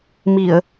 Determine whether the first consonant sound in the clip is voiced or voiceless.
voiced